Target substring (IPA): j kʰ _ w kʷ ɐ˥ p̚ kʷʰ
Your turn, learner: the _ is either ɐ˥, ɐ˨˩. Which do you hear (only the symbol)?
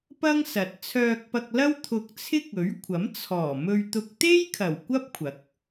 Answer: ɐ˨˩